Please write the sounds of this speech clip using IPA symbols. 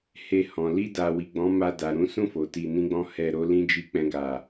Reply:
he˧hɔ̃˨ li˧da˨wi˨ ɡ͡bɔ̃˨˦ma˧ da˨ɾũ˨˦sũ˦˨fo˨ ti˧nĩ˦ɡ͡bɔ̃˦ hɛ˧ɾo˦lĩ˦d͡ʒi˦ k͡pɛ̃˦ɡa˧

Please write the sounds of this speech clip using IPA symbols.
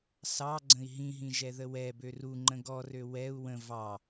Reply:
sɑɡ͡ǀə̃i̯ ɦĩɦĩʒɛðə wɛbø ruŋ͡ǃə̃ ɡɔrø wɛu̯ wə̃ vɑ

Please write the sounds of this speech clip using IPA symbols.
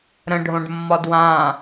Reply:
ɾə̃ɖʱõɖmːɒ dwã

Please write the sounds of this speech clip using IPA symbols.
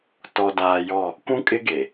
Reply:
tɔ˨daː˨ jɔ˦˨ | kʷũ˦kʼɪ˦ɡe˨

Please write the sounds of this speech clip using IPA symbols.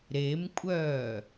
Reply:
ɾemkʷʼœː

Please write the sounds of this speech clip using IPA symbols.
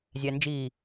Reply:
zʲænd͡ʒi

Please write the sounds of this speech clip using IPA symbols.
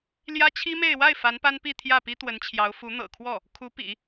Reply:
ljä˥t͡ɕʰi˥me˥˧ɪ̯ wa˥˩ɪ̯ fa˧˥npa˥npi˥˧ t̪ʰjä˥˩pi˥t̪wə˧˥nt͡ɕʰjɑ˧˥ʊ̯ fu˧˥n̪ɤ̰˨˩kʰwɔ˥˩ | kʰu˧˥pḭ˨˩˦

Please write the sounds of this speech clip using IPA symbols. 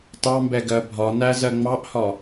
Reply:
tɑmbɛɡɜ bʱɒnæzɜ ŋ͡mɑʔhɒ

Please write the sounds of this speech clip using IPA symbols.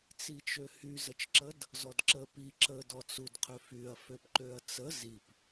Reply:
t͡sit͡ʃøhy zət͡ʃǁəd | zɔdǁə pi ǁə dɔt͡sud qʰøfyɐ̯ føpǃøɐ̯t͡sə zip

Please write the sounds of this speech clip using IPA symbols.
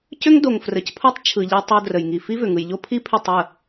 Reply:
cʏ˦ŋdo˨ŋ frə˨cpʰo˦tˤ t͡ʃʰɯ˨ʎe˧ tˤo˧ drə˨jŋi˨ fi˦vʏ˨ŋɯ˨jʎo˦ pʰi˦pʰʏ˦˨tˤə˦˨

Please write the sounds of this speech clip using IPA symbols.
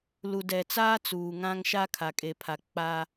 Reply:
lu˨dɛ˨t͡saː˦ t͡suː˨ŋã˦ŋʃa˦ kʰa˨kʼe˨pʰa˨ k͡paː˦

